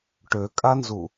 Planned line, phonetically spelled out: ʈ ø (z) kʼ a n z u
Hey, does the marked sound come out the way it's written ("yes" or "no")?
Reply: no